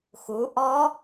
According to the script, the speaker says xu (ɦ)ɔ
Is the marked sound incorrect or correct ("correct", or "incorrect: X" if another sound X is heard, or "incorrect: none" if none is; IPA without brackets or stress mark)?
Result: incorrect: ʔ